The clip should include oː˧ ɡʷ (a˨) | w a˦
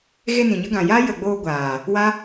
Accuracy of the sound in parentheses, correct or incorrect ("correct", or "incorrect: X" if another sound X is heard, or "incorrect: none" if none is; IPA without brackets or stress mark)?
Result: incorrect: aː˨